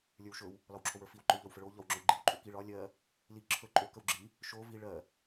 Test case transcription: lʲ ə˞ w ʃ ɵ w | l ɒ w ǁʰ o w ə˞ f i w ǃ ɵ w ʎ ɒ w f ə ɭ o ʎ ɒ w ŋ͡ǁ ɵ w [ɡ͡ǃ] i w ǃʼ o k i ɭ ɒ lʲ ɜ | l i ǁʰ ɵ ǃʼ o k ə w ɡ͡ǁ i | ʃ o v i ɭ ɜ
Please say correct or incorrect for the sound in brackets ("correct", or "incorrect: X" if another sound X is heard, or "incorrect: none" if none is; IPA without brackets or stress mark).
correct